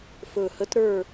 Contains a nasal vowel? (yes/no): no